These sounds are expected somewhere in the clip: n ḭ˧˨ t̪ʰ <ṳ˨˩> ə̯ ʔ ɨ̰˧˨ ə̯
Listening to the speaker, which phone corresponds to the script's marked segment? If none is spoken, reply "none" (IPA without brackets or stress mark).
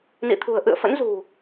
ṳ˨˩